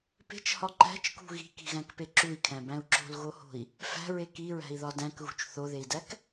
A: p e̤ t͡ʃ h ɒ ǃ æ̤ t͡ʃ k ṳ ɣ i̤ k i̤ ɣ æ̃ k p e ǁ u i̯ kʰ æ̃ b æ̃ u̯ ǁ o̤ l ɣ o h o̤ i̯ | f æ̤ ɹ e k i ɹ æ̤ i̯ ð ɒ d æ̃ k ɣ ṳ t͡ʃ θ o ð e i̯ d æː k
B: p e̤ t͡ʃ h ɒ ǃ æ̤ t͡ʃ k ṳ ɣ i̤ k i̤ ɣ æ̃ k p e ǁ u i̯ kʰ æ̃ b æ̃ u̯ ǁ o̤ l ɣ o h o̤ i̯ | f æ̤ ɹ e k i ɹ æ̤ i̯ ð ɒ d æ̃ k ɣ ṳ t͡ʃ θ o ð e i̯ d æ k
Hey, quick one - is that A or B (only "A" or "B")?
B